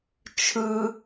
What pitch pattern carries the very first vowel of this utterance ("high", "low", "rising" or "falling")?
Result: high